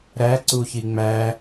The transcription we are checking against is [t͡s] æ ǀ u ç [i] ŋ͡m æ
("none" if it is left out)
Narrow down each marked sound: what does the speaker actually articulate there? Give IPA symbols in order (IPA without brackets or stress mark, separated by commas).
ɾ, i